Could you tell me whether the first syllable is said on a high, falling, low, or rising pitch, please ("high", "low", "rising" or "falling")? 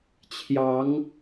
rising